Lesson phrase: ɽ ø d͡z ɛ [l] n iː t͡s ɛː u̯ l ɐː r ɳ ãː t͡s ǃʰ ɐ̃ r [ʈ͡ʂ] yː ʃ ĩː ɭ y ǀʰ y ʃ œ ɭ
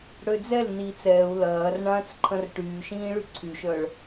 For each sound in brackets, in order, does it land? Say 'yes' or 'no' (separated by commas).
yes, no